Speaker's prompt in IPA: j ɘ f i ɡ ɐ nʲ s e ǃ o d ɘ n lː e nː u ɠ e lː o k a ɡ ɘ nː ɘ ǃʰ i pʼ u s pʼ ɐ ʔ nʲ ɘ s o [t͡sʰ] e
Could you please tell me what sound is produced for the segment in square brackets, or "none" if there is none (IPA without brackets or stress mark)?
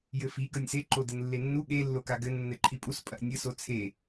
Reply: t͡sʰ